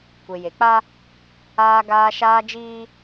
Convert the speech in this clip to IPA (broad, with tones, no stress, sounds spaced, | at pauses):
kʷ e˨ j e˨ k͡p a˦ | aː˦ ɡ aː˦ ʃ aː˦ d͡ʒ iː˦